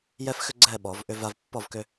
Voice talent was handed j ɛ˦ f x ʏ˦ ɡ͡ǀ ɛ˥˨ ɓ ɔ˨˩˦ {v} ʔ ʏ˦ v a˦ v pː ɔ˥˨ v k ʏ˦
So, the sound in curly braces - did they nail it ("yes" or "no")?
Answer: yes